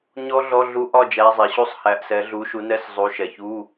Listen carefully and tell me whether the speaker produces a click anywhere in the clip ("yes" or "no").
no